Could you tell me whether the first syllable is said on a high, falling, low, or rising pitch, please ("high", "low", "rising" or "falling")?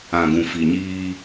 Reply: low